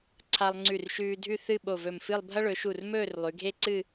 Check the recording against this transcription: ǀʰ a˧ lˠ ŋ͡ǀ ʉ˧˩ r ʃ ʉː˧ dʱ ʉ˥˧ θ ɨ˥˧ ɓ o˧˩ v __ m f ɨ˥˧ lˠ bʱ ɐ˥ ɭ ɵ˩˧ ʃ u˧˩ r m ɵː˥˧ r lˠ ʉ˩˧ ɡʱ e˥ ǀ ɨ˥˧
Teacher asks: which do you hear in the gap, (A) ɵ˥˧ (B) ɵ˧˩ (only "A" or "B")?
B